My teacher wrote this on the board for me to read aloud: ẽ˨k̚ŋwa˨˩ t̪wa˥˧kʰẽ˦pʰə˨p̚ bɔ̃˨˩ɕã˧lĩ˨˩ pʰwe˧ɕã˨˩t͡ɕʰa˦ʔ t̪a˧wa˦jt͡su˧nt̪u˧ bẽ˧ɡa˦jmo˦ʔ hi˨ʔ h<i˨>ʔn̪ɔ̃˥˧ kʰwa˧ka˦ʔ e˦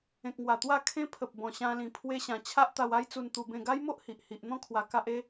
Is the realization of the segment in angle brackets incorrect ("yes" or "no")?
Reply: no